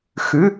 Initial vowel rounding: rounded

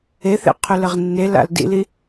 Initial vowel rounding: unrounded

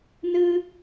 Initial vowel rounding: unrounded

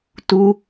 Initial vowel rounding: rounded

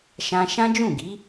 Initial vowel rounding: unrounded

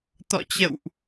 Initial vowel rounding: rounded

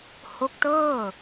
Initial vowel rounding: rounded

